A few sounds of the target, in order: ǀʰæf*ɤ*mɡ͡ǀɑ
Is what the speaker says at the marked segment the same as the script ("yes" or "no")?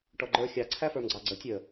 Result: no